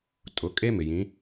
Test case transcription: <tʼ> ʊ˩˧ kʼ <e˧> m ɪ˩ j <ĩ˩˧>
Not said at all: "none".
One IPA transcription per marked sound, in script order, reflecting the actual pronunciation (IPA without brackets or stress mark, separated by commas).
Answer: tʼ, e˥, ĩ˩˧